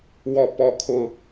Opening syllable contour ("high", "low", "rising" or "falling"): falling